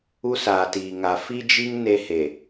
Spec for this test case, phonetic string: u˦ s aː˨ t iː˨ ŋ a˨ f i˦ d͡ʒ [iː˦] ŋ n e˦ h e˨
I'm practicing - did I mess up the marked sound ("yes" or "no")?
yes